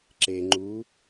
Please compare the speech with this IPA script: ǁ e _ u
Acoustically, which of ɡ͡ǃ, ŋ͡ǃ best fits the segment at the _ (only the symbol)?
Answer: ŋ͡ǃ